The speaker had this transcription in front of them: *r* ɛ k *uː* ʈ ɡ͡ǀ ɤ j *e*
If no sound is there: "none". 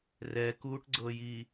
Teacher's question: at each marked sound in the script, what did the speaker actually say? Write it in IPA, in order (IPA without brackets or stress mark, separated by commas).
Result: r, uː, i